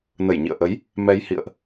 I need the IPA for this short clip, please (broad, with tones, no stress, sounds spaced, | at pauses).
n ə˧˩ j ɲ ḭ˧˨ ə̯ ʔ ə˨˦ j | m ɛ˧ j h ḭ˧˨ ə̯ ʔ